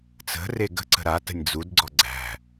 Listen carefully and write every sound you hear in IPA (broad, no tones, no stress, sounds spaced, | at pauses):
t͡s ə̤ r e ɡ ə̤ ǀ ə̤ ɾ a t ə̤ nʲ d͡z u d ɡ͡ǀ ɔ ɡ͡ǀ æ̤